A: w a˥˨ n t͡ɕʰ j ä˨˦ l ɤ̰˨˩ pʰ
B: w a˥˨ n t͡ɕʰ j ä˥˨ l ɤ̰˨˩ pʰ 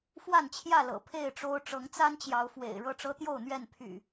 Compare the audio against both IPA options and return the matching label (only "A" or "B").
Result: B